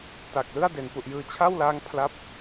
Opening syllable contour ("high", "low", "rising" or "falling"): low